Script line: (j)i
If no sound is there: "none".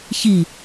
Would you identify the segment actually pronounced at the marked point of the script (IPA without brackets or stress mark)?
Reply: ç